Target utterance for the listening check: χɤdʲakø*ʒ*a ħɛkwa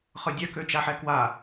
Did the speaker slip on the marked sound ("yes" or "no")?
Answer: yes